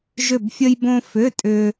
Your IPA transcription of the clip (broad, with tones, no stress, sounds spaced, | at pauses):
ʒ ʏ˥˧ b fʲ ə˥ j b õ˥ f ʏ˧˥˧ tʼ ʏ˥